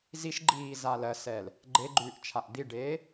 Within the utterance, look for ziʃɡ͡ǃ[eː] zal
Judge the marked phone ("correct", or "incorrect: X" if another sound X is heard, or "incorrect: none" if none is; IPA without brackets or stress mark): incorrect: iː